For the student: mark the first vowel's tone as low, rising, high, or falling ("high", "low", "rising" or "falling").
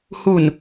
low